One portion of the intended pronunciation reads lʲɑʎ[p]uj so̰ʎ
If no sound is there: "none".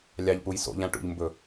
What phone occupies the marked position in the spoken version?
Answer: p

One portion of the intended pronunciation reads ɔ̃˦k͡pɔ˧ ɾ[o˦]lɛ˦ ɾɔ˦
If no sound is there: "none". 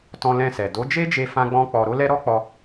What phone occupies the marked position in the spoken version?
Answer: o˦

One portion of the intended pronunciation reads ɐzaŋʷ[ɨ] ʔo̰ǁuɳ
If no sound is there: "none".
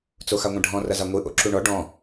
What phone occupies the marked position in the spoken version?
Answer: ɨ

